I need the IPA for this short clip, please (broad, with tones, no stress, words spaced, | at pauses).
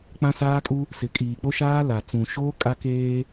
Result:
k͡pã˦saː˦kʼu˦ | sɪ˨ kʼiː˨k͡po˦ʃaː˦ la˨ t͡sũ˨ʃoː˦ kʼa˦keː˦